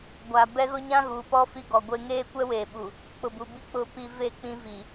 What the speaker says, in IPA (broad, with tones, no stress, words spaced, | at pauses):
ɡʷaː˨bɛ˦ɣʊ˦ ɲã˦ɣuː˨pɔ˦ fi˦ɡɔ˨ɡʷeː˦ ŋeː˦kʷɛ˦weː˨ ɓu˨ | k͡pʊ˨bu˨bi˦ k͡pʊ˨pi˨ ve˦˨k͡pĩ˦vi˨